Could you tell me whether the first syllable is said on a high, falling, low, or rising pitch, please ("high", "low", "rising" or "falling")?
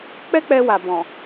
high